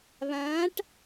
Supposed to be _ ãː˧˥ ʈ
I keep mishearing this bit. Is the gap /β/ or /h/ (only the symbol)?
β